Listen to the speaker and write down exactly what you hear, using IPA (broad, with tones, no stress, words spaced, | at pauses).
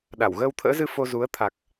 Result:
ɗa˧˩wɣəː˧wt̪ʰə̰ː˧˥zɨ˧ fo˧zu˨˦ə̯ t̪ʰa˨˩k̚